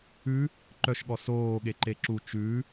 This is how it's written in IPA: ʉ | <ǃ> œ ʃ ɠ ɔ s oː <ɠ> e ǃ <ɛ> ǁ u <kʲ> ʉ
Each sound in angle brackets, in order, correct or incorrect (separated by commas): correct, correct, incorrect, incorrect